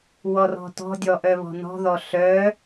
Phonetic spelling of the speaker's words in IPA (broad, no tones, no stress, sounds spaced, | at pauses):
w ɔ r ɔ̤ t ɔ̤ dʲ ɔ ʔ œ β ɔ̤ n ɔ̤ ð ɔ ɬ œ